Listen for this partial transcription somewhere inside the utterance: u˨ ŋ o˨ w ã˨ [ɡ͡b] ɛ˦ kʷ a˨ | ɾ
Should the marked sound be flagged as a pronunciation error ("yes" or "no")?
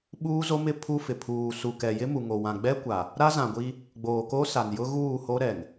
no